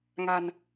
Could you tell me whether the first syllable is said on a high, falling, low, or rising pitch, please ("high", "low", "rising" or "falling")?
low